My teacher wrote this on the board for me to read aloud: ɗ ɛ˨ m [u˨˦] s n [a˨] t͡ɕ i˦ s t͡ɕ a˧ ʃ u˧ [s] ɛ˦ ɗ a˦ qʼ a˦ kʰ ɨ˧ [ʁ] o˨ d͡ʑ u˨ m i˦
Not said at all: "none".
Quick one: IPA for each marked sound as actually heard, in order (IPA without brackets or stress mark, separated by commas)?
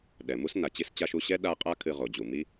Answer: u˦, a˨, ɕ, ʁ